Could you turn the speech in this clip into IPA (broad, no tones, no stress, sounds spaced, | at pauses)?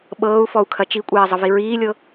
ɓ ɤː u̯ f ɔ u̯ kʰ ɐ t͡ʃ i kʷʼ ɛː zˤ ə v i ɹ iː lʲ ɤ